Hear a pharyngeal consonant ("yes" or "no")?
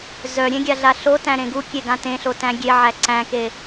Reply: yes